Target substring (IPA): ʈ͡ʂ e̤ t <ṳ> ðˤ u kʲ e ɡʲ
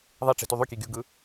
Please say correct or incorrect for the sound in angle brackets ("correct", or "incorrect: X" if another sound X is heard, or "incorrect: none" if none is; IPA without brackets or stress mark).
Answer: incorrect: u